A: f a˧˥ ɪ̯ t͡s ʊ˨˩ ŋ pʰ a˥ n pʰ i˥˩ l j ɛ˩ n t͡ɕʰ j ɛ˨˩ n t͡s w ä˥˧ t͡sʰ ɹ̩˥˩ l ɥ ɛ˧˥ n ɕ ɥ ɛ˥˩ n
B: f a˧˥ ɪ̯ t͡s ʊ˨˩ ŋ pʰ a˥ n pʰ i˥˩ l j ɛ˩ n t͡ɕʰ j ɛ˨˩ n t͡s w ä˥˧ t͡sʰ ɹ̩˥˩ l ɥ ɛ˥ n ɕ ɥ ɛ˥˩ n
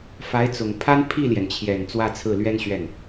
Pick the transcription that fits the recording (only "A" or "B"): B